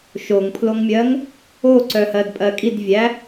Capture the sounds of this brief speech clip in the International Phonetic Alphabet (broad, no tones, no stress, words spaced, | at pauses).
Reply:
ʃoŋpʰloŋmʲɜŋ | oǀœhɜdpʼɜ kʼidvʲæ